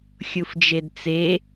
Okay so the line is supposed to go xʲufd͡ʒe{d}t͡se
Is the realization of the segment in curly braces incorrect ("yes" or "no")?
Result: no